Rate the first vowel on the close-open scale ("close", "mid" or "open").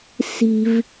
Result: close